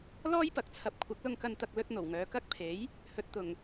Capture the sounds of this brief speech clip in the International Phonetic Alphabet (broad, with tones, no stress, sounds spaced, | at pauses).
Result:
l ɔː˥ j p ɐ˨ k̚ t͡sʰ ɐ˨ p̚ kʷʰ ɐ˨˥ k̚ l ʊ˧ ŋ k ɐ˧ n t̪ ɐ˧ k̚ l ɵ˥ t̚ n̪ o˨˩ w ŋ œː˨˧ k ɐ˥ k̚ pʰ e˨˥ j | h ɵ˨ t̚ t̪ ʊ˨˩ ŋ